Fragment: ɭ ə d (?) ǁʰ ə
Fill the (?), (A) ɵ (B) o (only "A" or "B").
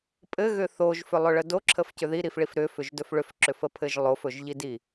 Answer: B